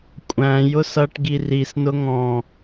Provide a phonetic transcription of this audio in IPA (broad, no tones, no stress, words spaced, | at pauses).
kʷʼæ̃ jʊsʌʈɡi risnʊ ŋɔ̃